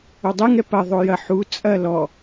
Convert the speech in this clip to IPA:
o dˤ ɛ ŋ ɛ p ɐ ðˤ o j ɐ ħ u t͡sʼ ɐ l ɔ

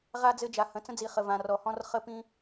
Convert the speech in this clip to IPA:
ʁ a˧ d͡z ɘ˧ d͡ʒ a˩ h ə̃˩ t͡s ə̃˧ d͡z i˩ χ ə˩ v ã˩ r ɔ˩ h ɔ̃˧ r χ ə˧ p ĩ˧

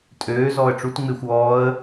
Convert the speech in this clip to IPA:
tʼ øː z ɔː ə̯ ʈ͡ʂ u t ŋ͡m ɪː xʷ ɔː ə̯

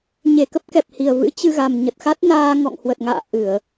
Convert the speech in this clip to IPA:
ɲ e˧˩ k ə˦˥ p̚ k ɛ˨˩ p̚ h i˨˩ ə̯ v ɨ̰˧˥ t͡ɕ ɨ˧ ɣ a˨˩ m ɲ ə˨˩ t̚ x a˦˥ t̚ n aː˧ ŋ ɔ̰˧˨ ŋ h w ə˨˩ t̚ ŋ a̰ː˧˨ ʔ ɨ˧˩˨ ə̯

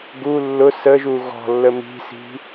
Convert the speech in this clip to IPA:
ɡ u lː ʊ s ə ʒ u ɣ ɔ̤ lː ə m i̤ s i̤

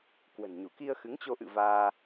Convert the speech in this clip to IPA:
k w ə̤˨˩ n ɲ u˧˩ k i˧ ə̯ x ɨ˨˦ ŋ t͡ɕ o˧ ʔ ɨ̰˧˨ v aː˧

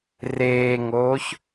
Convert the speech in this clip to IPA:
r eː ŋ oː ç

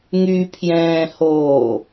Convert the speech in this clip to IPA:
ŋ y pʰ j ɛ̃ː h oː

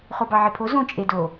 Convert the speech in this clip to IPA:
χ o b ɑ ʕ e pʰ o z õ t͡ʃʼ e d o

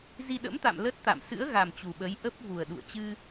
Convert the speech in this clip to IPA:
z i˧ ɗ ə̰˧˥ m t̪ a̰˧˨ m l ə˦˥ t̚ t̪ a̰˧˨ m s ɨ̰˧˥ ə̯ ɣ a˨˩ m t͡ɕ u˨˩ ɓ ə˨˦ j ʔ ə˦˥ p̚ v u˨˩ ə̯ ɗ ṵ˧˨ ə̯ t͡ɕ ɨ˧

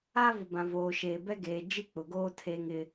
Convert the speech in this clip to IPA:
aː˦ v ʊ˨ b ã˨ v oː˨ ʃ eː˨ b ɛ˦ ɡ eː˨ d͡ʒ i˦ k͡p ʊ˨ ɡ oː˦ tʰ eː˦ ŋ ɪ˦

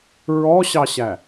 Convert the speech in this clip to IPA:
ɹ ɔ ɕ ɑ ɕ æ

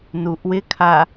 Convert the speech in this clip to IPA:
n u ʔ w ɪ kʰ a

